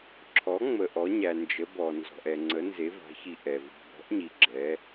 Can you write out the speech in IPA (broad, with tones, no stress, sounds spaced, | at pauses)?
ǁʰ ɔ˨˦ ŋ͡m ə˨ ʔ ɔ˨˦ ɲ æ˨ n d͡ʒ ə˨˦ b ɔ˨ n z ɔ̤˨ ʔ ɛ˨ ŋ͡ǀ ə˨˦ n z e˨˦ v a̤˨˦ ç i˨ ʔ ɛ˨ v i̤˨ b ɔ̤˨˦ ʔ ɲ i˨ ɡ͡ǁ ɛ˨˦